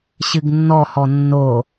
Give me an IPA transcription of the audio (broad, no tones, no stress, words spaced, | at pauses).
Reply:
ɕɨɡnːɔhɔ nːo